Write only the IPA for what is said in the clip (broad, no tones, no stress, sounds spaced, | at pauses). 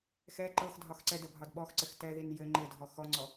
x ɛ ǃ ɤ x dʱ ɒ x ǀ ɛ d ə bʱ ɒ d ɓ ɔ x ǀ ɘ x t ɛ ð i n j ɘ ŋ͡ǃ ɘ dʱ ɔ x ɔ ŋ͡ǀ ɔ